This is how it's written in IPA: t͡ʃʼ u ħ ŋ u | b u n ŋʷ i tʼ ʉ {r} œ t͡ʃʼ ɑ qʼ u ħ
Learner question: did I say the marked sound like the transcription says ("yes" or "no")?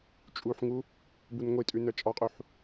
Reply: no